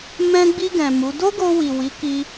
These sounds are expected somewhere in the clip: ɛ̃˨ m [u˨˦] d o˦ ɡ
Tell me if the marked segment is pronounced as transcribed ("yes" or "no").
yes